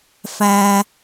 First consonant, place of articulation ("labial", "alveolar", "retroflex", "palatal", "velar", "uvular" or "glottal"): labial